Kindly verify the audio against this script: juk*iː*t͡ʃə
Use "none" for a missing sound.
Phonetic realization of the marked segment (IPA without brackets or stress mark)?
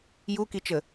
i